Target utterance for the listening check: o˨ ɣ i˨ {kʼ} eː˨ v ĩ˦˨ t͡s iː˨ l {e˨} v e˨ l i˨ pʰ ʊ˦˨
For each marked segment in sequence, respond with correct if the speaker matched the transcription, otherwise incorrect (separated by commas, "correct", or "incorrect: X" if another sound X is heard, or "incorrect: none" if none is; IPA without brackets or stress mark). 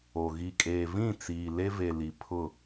correct, incorrect: e˦